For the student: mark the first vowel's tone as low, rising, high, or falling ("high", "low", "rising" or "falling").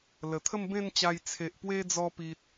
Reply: low